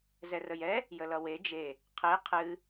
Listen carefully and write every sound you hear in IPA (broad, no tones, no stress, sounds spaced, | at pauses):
z ɛ r ə j ɛ | j ə l ʌ w e d͡ʒ e | qʰ e qʰ ɨ